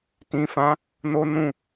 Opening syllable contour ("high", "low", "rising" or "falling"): low